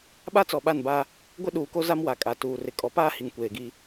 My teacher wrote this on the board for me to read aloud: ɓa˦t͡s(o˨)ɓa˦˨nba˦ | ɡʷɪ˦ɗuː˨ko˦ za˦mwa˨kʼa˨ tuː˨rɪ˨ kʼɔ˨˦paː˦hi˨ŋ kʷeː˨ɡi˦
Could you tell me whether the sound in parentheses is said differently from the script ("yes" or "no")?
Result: yes